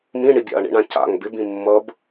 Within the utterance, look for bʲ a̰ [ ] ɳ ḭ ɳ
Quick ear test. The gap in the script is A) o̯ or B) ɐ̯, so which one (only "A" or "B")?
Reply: B